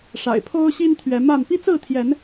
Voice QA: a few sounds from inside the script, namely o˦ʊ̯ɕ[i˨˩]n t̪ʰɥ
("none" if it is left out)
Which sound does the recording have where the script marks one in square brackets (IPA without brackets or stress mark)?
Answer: i˦